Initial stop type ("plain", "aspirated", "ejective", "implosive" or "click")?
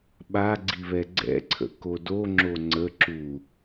implosive